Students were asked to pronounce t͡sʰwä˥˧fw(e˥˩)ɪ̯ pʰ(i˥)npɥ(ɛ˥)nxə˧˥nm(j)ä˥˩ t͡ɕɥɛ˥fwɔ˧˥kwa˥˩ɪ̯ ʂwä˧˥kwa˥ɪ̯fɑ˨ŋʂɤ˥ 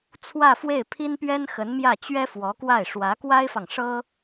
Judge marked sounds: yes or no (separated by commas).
yes, yes, yes, yes